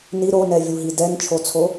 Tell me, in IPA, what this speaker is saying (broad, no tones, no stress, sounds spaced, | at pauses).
n i ɾ o n ɛ vʲ u ɦ i d ɛ n t͡ʃʰ o t͡sʰ o